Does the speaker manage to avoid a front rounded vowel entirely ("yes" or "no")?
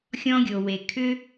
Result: no